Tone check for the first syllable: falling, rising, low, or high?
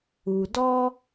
low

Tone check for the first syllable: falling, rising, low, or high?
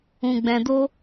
low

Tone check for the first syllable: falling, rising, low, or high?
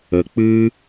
low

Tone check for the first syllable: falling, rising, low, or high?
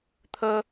high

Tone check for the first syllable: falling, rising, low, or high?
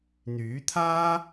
rising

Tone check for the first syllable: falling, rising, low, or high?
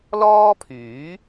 high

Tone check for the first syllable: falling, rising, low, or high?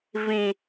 low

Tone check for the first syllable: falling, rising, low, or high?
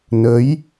rising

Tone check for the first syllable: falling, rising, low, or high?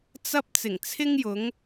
high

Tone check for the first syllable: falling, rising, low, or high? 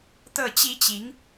falling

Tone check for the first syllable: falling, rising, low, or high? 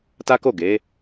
high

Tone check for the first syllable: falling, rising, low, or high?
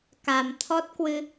low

